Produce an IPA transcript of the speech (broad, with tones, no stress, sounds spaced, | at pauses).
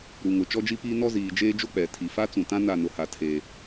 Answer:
ɾ u˨ ŋ ʊ˨ t͡ʃ ɔ˦ d͡ʒ i˦ p iː˦ n ɔ˦ z iː˨ d͡ʒ eː˦ d͡ʒ o˦ k͡p ɛ˨ tʰ i˨ f a˦ t͡s ũ˨ t ã˦ n a˦˨ n ʊ˨ h a˨ tʰ e˨